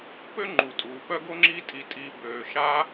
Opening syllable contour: high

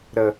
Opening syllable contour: low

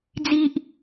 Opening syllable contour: high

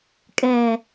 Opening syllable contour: low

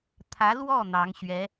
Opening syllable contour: rising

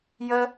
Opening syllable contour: high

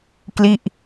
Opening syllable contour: falling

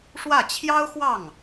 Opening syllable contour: falling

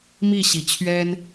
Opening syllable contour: falling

